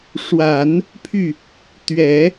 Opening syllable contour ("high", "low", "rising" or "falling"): low